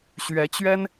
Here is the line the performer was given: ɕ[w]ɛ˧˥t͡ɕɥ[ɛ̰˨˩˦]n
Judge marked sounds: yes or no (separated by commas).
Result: no, no